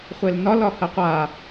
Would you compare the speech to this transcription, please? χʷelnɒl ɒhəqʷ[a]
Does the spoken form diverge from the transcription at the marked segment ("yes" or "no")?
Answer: no